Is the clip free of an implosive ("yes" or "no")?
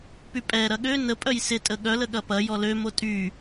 no